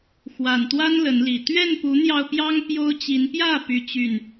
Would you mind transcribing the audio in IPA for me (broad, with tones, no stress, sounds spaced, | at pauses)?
x w a˨˩ n t̪ w a˦ n l ə˨˦ n l i˨˩ t̪ ɥ ɛ˥˨ n p u˨˦ n̪ j ɑ˧ ʊ̯ p j ɑ˦ ŋ p j o˦ ʊ̯ t͡ɕ i˨˦ n p j ä˥˨ p y˦ t͡ɕ y˥˨ n